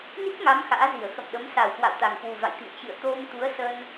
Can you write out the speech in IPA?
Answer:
n i˦˥ k̚ ŋ a˨˦ m x a̰ː˧˥ z i˧˩ ə̯ x ə̰˧˨ m ɗ ə˨˦ m s a˨˩ w k w a̰˧˨ w t̪ a˨˩ ŋ k w u˨˩ v a̰˧˨ j t̪ ḭ˧˨ ə̯ t͡ɕ ɨ̰˧˨ ə̯ t̪ o˧ m t̪ u˨˦ ə̯ s ə˧ n

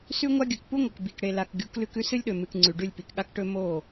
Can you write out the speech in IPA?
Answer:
s ʉ˦ ŋʷ a˦ ɡʲ ɵ˨ k p u˦ ŋʷ ɐ˨ k b i˨ k ɽ e˨ l a˨ k ɡʲ u˨˦ k l ʉ˦ k ʉ˦ s ɨ˦ lʲ ɗ ɵ˨ m ɨ˨ k ŋ͡ǀ ʉ˨ ɖ ʉ˦˨ lʲ p i˨ k ɠ a˦ k ʈ ɵ˦ m o˦˨

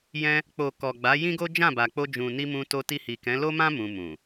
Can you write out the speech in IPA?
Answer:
j ɛ̃˧ | k͡p o˨ k ɔ˨ ɡ͡b a˨˦ j ĩ˦ ɡ o˦ d͡ʒ ã˦˨ b a˨ k͡p o˧ d͡ʒ ũ˨ n i˧ m ũ˧ t o˧ t i˧ h i˨ k ɛ̃˨˦ l o˦ m ã˦ m ũ˧ m ũ˨

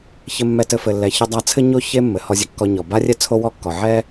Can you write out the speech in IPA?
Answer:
ç ɘ˧ mː ɛ˧ t ɘ˧ f ɘ˩ lː ɛ˩ ç ə˧ dˤ a˧ t͡sʰ ɘ˥ ɲ o˥ ç e˥ mː ɘ˩ h ɔ˧ zʲ ɘ˧ kː ɔ˧ ɲ ɔ˩ b a˥ rʲ ɛ˥ t͡sʰ o˥ w ɔ˥ kː ɔ˩ ʕ ɛ˥

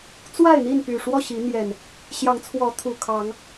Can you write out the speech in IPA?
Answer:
t͡s w a˥˨ ɪ̯ n̪ i˥˨ n p y˨˩ ʂ w ɔ˥˨ ɕ i˨˦ n̪ j ɛ˨˩ n | ɕ j ɑ˨˦ ŋ t͡sʰ w ɔ˨˦ t̪ʰ u˨˩ kʰ ɑ˨˦ ŋ

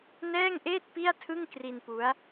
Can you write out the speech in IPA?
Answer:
n ɛː˥˩ ŋ ʔ eː˥˩ t̚ p i˥˩ a̯ tʰ ɯ˥˩ ŋ k r i˧ n p u˦˥ a̯

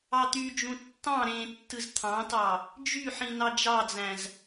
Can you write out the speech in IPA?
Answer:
ɑ t̪ y d͡ʒ ũ tː ɑ̃ ɾ ẽ tː ɯ z t̪ʰ ɑ̃ t ɑ | d͡ʒ y ħ ĩ n ɑ d͡ʒ ɑ d͡z æ̃ z

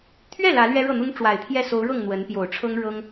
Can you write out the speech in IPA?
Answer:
t̪ʰ ɥ ɛ˥˩ l ä˧˥ l ɥ ɛ˥ ɻ ɤ˥˩ n̪ ʊ˥ ŋ ʈ͡ʂ w a˨˩ ɪ̯ t̪ʰ j ɛ˥˩ s o˧˥ ʊ̯ ɻ ɤ˥˩ ŋ n̪ w ə˧˥ n p j o˨˩ ʊ̯ ʈ͡ʂʰ ɤ˥ ŋ ɻ ɤ˥ ŋ

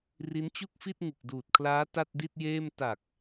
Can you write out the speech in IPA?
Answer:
r i˦˥ n t͡ɕ u˥˩ k̚ f i˥˩ t̚ ŋ ɯ˨˩ k̚ d uː˨˩ t̚ kʰ l aː˦˥ t a˥˩ t̚ d i˥˩ t̚ j eː˥˩ m t a˨˩ k̚

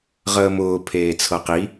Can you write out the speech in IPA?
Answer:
ʁ əː m ʊː pʰ eː t͡sʰ ɤ q i

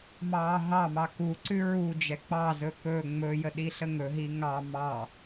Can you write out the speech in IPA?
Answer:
m ɑː ɦ ɑ m ɑ k u ǀ ʉ ɹ u d͡ʒ ɛ k͡p ɑ z ɵ k ɵ ŋ͡m ɵ j ə ɗ i ɬ ə ŋ ɵ ɦ i ŋ ɑ m ɑ

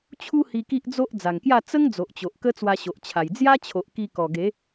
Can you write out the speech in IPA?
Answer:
t͡ɕʰ u˦ h i˧ k i˦ ʔ d͡z o˦ ʔ d͡z a˨˩ ŋ k j a˥˧ t͡s ə˦ ŋ d͡z o˨ ʔ t͡ɕ o˨ ʔ k ə˦ t͡s w a˧ ɕ o˨ ʔ t͡ɕʰ a˨˩ j d͡z j a˦ t͡ɕʰ o˨ ʔ k i˧ k ɔ˨˩ ɡ e˨˦

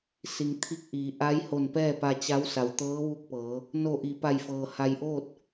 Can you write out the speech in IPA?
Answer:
s i˩ ŋ t̪ʰ i˧˥ k̚ ʔ iː˩˧ ʔ a˧˥ j h o˧˩ n p ɛː˥˨ p a˧ t͡ɕ a˧˥ w s a˩ w t̪ ɤː˧˥ ʋ u˧˥ k̚ p ɤː˩˧ | n o˧˩ ʔ i˩ p a˧˩ j f ɤː˩ h a˧ j ʔ oː˥˨ t̚

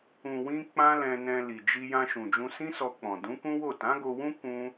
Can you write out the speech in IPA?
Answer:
ũ˨ w ĩ˧ k͡p ã˦ l ɛ̃˧ n ɛ̃˧ l i˨ d͡ʒ i˧ j ã˧ ʃ ũ˨ d͡ʒ ũ˧ s ĩ˦ s ɔ˧ k͡p ɔ̃˨ d ũ˨˦ k ũ˦ w o˦˨ t ã˨˦ ɡ o˧ w ũ˦ k ũ˦

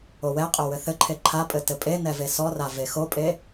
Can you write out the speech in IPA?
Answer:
o w ɛ qʼ o w ɘ θ ɘ ǃʰ e ǃʰ a pʼ ɘ t ɘ pʼ e n ɛ v e s ɔ r a v e x o pʼ e

